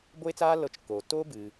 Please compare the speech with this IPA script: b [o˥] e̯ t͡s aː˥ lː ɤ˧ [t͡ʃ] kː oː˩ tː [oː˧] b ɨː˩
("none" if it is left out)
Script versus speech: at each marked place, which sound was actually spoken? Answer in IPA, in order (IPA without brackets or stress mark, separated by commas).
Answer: o˥, t͡ʃ, oː˥